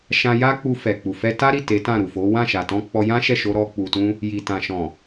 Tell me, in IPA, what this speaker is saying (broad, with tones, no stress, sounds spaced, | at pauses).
ʃ ã˧ j a˦ k͡p u˧ f ɛ˨ k͡p u˨ f ɛ˧ t a˦ ɾ i˦˨ t e˨˦ t ã˦˨ ɾ u˨ f o˨˦ w ã˦˨ ʃ a˨ t ɔ̃˧ k͡p ɔ˧ j ã˦ ʃ ɛ˦˨ ʃ o˧ ɾ ɔ˦ k͡p u˧ t ũ˦ | j i˨ t ã˨ ʃ ɔ̃˨